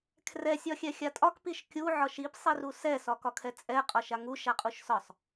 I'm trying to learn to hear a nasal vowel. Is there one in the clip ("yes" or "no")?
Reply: no